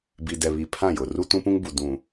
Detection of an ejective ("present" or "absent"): absent